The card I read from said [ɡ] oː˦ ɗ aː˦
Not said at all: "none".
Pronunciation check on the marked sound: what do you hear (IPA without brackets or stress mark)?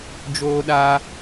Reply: d͡ʒ